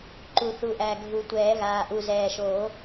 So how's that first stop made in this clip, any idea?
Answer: click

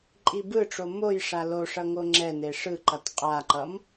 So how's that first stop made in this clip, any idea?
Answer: click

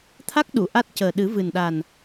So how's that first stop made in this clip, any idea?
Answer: aspirated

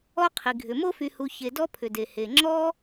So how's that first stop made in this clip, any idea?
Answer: aspirated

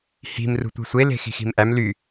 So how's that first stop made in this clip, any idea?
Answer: plain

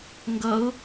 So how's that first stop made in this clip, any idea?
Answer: plain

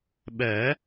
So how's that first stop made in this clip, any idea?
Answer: implosive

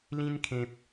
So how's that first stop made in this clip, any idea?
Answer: aspirated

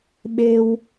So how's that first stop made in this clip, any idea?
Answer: implosive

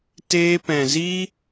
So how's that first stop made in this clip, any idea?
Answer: plain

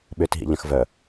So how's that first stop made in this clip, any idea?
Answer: implosive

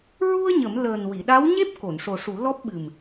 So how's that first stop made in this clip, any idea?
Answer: implosive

